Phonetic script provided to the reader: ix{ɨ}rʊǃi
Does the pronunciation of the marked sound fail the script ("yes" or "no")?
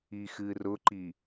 no